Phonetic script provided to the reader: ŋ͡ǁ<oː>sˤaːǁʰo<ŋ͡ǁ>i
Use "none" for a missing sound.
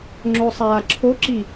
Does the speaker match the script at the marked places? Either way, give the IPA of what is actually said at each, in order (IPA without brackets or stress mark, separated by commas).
o, ǁ